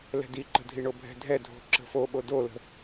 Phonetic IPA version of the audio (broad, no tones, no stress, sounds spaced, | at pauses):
l ɛ̤ d i ǃ ə̤ dʱ i ɳ o bʱ ɛ̤ dʱ ɛ dʱ o̤ ǁ ə̤ f o ɓ o d o l ə̤